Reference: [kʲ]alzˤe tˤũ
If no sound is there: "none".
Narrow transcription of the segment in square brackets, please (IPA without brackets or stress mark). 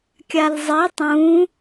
kʲ